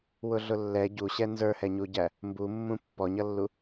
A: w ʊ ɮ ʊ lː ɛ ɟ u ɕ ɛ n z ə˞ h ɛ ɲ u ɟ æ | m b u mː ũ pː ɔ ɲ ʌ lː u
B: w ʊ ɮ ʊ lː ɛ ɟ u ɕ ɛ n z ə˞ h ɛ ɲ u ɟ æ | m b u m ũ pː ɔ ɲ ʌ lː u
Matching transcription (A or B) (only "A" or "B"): A